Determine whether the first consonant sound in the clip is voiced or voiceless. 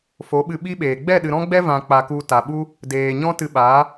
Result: voiceless